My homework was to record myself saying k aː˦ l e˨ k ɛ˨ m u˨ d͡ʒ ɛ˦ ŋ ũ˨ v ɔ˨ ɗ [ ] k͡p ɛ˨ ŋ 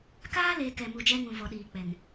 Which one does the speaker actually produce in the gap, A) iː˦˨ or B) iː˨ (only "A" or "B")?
B